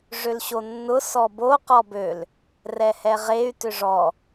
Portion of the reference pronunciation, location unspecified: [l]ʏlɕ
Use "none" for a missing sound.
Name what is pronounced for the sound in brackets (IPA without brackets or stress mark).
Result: ʐ